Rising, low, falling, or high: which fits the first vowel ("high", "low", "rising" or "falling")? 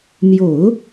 low